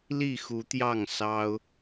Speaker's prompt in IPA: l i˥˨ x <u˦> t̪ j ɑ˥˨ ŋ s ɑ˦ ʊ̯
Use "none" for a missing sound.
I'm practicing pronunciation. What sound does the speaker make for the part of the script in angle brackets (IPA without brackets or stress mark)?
u˨˦